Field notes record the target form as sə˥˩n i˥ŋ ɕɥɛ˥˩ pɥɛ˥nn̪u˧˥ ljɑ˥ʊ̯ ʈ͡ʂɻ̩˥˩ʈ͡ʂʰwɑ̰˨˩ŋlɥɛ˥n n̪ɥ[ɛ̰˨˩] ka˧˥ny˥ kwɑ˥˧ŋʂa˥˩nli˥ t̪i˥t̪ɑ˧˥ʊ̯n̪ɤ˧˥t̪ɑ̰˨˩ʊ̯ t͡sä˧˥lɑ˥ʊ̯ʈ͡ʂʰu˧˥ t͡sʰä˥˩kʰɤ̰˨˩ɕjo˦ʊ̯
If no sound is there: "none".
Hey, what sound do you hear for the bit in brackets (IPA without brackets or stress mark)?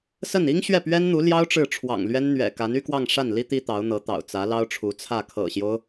ɛ̰˨˩